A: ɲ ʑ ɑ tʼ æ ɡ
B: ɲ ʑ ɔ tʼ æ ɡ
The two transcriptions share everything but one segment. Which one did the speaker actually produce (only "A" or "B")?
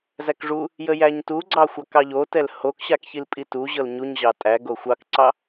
A